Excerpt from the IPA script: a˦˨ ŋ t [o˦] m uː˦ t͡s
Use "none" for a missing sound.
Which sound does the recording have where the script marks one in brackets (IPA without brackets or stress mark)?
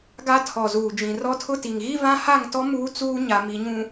ɔ˦